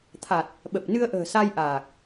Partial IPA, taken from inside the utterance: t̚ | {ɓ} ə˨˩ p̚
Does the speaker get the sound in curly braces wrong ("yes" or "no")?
no